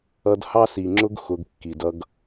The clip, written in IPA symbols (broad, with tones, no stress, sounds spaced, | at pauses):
ʌ˧ d h ɑ˦ s i˨ ŋ͡ǁ ʊ˦ ɡ x ʊ˧ ɡ kː i˨ d ʌ˦ ɡ